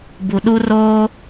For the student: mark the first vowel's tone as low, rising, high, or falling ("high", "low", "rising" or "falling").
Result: low